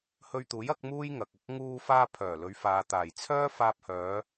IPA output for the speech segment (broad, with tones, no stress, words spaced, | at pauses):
hɵ˧ɥt̪uː˨˥jɐ˨˥k̚ muː˥jŋɐ˨k̚ɐ˨k̚ ŋuː˧faː˧pʰœː˨˩ lɵ˨˧ɥfaː˨ t̪aː˨˩jt͡sʰœː˥ faː˧p̚hœː˨˧